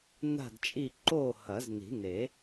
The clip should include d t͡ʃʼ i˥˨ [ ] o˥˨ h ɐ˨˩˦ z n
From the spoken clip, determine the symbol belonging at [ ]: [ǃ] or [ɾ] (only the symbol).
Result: ǃ